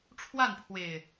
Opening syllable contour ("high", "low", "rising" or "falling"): falling